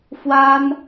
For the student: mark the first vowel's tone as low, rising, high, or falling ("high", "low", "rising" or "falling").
high